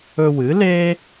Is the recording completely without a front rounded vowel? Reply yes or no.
yes